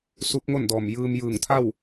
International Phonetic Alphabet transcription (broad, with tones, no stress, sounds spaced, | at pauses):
s u˧˥ p̚ ŋ o˥˨ n d ɔː˧˩ m j ɯː˧ m j ɯː˧˩ ŋ t̪ʰ a˥˨ w